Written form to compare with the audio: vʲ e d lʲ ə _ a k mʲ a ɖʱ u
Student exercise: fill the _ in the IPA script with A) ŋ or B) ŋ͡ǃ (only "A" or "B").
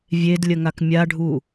A